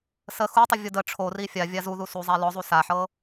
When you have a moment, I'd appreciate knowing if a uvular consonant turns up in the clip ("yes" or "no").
no